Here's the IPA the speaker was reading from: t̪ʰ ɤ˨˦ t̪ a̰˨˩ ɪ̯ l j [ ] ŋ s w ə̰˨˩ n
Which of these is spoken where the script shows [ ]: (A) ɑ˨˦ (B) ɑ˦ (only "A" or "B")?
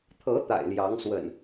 A